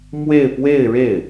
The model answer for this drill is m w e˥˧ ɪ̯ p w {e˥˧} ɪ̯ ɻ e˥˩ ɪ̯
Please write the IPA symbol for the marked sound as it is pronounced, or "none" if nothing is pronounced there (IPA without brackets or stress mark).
e˥˧